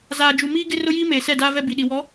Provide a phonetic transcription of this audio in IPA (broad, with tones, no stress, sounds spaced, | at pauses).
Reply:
z aː˨ d͡ʒ u˨ m iː˦ ɡ ɪ˦ r ʊ˦ j iː˦ m eː˨ s ɛ˦˨ d aː˦ v ɛ˦ b i˨ ɗ i˨ w ɔ˨˦